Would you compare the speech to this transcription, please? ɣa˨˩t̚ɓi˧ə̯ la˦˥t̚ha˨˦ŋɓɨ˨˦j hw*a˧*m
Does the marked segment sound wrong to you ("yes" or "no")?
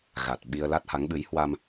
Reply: no